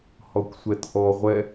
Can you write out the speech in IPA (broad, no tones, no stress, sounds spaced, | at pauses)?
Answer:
h ɔ kʷ sʷ ɛ t ʔ ɔ ʁʷ ɛ